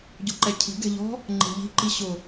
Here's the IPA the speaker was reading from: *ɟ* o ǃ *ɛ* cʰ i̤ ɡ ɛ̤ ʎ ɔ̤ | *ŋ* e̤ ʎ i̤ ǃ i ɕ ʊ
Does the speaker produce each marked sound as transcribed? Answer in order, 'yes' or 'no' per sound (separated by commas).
yes, yes, no